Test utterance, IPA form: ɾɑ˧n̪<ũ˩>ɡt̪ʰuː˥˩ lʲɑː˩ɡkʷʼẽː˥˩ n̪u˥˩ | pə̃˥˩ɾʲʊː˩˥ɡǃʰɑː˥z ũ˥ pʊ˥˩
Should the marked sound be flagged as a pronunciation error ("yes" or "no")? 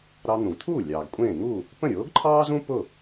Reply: no